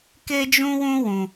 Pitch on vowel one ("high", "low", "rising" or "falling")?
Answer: high